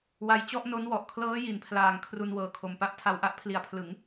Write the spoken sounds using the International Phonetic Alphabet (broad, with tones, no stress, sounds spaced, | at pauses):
w a˧ j t͡ɕ ɔ˥˩ ʔ n o˦˥ n w ɔ˨˩ ʔ kʰ l ɤː˦˥ j i˩˦ n pʰ l aː˨˩ ŋ kʰ r u˧ n w ɤː˨˩ kʰ o˨˩ m p a˥˩ ʔ tʰ a˧ w ʔ a˦˥ ʔ pʰ l i˩˦ a̯ pʰ l ɯ˩˦ ŋ